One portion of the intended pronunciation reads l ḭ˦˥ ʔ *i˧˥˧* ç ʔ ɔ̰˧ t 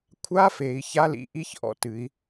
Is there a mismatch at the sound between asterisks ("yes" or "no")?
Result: no